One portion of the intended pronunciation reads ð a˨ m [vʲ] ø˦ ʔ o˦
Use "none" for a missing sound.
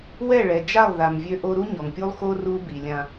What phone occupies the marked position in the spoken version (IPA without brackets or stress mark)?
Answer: vʲ